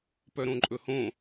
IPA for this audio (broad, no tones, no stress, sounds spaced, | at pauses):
p œ ɾ õ ǃʼ ɵ h õ